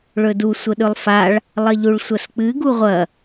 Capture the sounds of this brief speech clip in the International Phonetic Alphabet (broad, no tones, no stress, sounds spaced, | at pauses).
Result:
ɭ ɵ d u sʷ ə ɗ ɵ lˠ f a ɭ | lˠ ɐ ʎ u ɭ sʷ ɐ s k͡p ɨ ɡ u ʁʷ ɐ